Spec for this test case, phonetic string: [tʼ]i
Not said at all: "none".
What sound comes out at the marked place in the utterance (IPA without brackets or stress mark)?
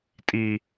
tʼ